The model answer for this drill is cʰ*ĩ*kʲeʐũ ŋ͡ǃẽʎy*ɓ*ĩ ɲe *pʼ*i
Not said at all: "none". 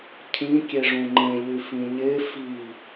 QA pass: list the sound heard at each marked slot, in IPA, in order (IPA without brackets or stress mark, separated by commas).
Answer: ĩ, f, f